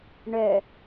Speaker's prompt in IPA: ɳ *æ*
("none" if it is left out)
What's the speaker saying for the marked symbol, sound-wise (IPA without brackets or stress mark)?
œ